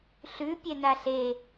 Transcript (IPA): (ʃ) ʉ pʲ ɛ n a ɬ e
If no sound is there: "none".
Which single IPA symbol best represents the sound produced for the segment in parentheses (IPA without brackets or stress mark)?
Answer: ɬ